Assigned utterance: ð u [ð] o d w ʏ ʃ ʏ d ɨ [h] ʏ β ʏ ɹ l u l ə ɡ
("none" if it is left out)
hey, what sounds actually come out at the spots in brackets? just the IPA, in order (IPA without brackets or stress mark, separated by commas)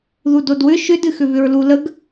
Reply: d, x